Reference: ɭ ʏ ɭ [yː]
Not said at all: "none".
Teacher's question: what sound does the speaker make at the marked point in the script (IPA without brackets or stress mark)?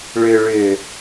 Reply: ʏː